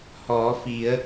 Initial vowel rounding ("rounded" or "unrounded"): rounded